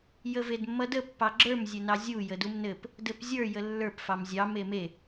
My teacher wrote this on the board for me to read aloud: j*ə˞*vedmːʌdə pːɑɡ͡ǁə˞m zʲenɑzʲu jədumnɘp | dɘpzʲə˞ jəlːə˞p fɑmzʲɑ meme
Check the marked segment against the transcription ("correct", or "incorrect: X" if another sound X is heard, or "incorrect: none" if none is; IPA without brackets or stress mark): incorrect: ə